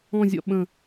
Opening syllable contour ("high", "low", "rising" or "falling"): falling